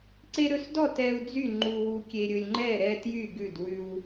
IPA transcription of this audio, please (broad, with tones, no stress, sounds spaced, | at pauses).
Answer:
ǀ e˦ ɾ ɵ˦ s d ɔ˥˨ t ɛ˦ u̯ d͡z y˥˨ ŋ͡ǃ u˦ w u˦ kʲ e˦ ɾʲ ɵ˦ lʲ ŋ͡ǃ ɛ˥˨ ɾ ɛ˦ t j y˥˨ ɡ ʉ˥˨ d w ʉ˦ w